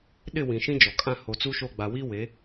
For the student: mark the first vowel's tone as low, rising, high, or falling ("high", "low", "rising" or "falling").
falling